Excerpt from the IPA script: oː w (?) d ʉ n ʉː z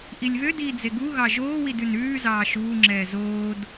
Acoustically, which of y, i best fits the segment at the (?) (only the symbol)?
i